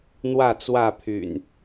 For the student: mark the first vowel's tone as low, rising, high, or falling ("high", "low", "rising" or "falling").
falling